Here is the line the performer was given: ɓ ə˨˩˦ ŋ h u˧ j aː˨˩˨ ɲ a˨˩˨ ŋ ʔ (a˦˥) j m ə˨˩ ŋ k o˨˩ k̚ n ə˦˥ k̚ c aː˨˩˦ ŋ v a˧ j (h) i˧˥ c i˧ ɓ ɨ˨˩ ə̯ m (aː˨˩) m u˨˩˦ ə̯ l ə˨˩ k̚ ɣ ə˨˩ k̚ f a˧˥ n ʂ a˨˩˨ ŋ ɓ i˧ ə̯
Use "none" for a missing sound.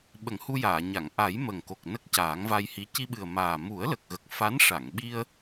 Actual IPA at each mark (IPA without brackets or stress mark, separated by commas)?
a˨˩˦, h, aː˨˩